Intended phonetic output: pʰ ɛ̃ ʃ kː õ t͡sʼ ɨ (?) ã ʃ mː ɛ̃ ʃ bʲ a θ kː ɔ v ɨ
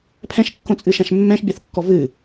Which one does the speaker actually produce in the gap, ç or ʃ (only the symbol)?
ʃ